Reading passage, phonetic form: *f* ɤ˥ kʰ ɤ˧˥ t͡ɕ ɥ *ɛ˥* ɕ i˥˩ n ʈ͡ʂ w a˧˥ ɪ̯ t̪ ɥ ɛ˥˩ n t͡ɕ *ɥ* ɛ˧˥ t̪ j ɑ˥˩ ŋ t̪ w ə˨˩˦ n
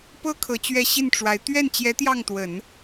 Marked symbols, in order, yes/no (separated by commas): no, yes, no